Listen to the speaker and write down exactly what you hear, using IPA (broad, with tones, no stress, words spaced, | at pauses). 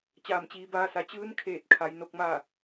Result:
t͡ɕaː˧˩mt͡ɕiː˩˧baː˧sa˩˧ t͡ɕɯː˧˥nkʰeː˧˩t̚ kʰa˩˧j no˧k̚maː˥˨